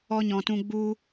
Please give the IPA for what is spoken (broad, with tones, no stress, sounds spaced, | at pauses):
ɔ˦ ɲ ɔ̃˨ t ũ˧ ɡ͡b u˧